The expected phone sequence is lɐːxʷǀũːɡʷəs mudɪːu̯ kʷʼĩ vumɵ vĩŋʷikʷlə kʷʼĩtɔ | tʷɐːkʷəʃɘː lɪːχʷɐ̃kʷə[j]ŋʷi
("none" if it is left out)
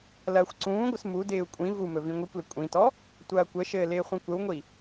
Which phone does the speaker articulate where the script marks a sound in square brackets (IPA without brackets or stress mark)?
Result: w